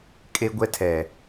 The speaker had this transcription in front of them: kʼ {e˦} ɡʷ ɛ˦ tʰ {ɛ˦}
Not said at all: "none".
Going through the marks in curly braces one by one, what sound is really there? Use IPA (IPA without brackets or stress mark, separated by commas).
e˦, ɛ˨